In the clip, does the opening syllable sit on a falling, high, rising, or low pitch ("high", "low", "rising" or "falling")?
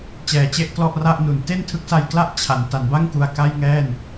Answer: low